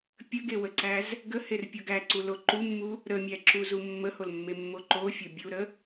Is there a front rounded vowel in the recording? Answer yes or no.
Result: no